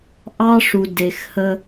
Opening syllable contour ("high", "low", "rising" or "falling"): high